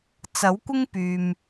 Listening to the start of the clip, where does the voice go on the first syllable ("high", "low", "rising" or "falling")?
rising